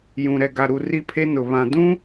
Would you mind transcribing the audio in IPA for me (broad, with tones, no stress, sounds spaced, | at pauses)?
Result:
j ũ˨ ɾ ɛ˨ ɡ a˨ ɾ u˨ r i˦ pʰ e˦ n ʊ˨ β ã˨ d ũ˦